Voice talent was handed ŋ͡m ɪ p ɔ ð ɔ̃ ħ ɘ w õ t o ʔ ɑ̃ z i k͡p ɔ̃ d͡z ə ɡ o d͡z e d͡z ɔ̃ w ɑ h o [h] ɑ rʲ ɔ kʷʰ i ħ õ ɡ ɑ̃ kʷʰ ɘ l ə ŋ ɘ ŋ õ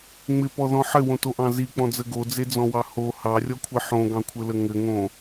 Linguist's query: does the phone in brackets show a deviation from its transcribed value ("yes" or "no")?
no